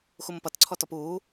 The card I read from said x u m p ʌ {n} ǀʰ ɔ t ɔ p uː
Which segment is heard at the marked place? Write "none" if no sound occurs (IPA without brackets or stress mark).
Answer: t